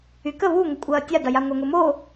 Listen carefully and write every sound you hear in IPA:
y k ə β u ŋ ə kʷʼ ɐː tʲ a d ɐ j a ŋʷ ɐ ŋ ʊ m o

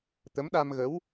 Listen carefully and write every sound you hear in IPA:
t̪ ə˧˥ m ɗ a˧ m ɣ ə˧˥ w

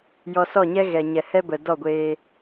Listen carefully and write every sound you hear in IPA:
j ɔ˧ s ɔ˦˨ ɲ ɛ˦ ɣ ɛ˨ ɲ ɛ˨ h ɛ˦ b ə˨ d ɔ˦˨ ɡʷ eː˧

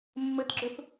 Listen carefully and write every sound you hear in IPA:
mː ɘ t ɡ͡ǁ ʏ f

